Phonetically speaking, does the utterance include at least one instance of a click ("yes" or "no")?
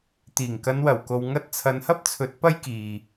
no